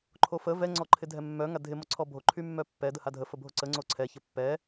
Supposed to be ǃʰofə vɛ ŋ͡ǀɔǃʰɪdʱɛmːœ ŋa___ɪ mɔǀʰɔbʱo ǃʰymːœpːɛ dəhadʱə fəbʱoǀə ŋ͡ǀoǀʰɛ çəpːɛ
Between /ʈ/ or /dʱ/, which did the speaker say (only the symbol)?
dʱ